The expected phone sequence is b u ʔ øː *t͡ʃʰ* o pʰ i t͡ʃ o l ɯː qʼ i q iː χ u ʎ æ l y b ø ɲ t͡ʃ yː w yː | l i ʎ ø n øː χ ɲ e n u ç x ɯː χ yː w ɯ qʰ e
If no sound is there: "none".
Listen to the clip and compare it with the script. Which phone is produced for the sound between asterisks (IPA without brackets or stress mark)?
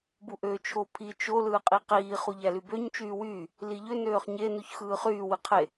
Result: t͡ʃʰ